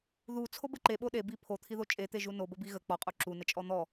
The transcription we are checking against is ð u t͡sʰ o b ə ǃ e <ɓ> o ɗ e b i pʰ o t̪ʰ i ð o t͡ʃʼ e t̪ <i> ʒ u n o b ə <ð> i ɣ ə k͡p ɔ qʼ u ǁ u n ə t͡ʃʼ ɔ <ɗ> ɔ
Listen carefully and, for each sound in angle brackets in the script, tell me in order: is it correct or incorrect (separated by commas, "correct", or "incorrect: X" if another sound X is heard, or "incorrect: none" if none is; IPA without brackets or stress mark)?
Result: correct, incorrect: e, incorrect: b, incorrect: n̪